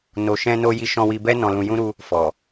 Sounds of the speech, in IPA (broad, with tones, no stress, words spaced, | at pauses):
no˨ʃɛ̃˧no˧ ji˧ʃɔ̃˧wi˧bɛ˦ nɔ̃˧lũ˧jũ˦ ɾu˦ | fɔ˨